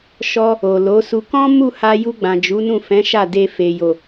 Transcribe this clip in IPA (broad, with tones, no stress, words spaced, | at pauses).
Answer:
ʃɔ˧ | o˨lo˨˦su˧ kɔ̃˦ mu˦˨ha˧ju˧ ɡ͡bã˨d͡ʒu˨˦nũ˦˨fɛ̃˨˦ ʃa˦˨de˧ fe˨jo˨